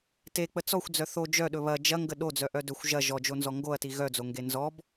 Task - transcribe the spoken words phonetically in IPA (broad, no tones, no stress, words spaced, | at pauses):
tek͡pə t͡sɔxʷd͡zœ θo d͡ʒœɗɵ βɐ d͡ʒɐŋɡə ɗod͡zœʔœ dɵxʷ ʒɐ ʒɔd͡ʒonzɔ ŋɡoɐ̯ti ɣœd͡zoŋɡe nzɔb